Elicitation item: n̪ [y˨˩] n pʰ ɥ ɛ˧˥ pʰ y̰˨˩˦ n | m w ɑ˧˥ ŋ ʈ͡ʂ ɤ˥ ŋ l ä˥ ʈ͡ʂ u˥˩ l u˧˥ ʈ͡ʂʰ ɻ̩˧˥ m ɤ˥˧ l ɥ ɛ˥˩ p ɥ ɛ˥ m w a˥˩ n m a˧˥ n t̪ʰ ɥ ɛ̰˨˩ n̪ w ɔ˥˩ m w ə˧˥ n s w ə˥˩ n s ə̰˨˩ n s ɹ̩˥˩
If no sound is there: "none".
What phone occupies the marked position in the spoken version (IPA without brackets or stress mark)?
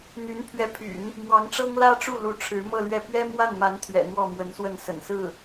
y˧˥